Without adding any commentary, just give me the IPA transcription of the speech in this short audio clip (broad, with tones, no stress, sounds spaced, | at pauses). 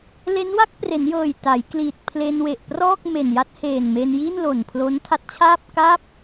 l e˦˥ n w a˥˩ k̚ p r e˩˦ n j ɤː˨˩ j t a˩˦ j k l iː˨˩ t̚ pʰ l e˧ n w e˨˩ ʔ p r ɔː˥˩ k̚ m e˨˩ n j a˦˥ t̚ h eː˨˩ n m e˧ n j i˥˩ n l o˨˩ n pʰ l o˦˥ n tʰ a˦˥ t̚ t͡ɕʰ aː˥˩ p̚ k a˥˩ p̚